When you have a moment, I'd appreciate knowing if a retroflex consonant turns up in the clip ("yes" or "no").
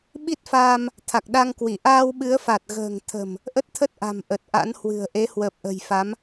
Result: no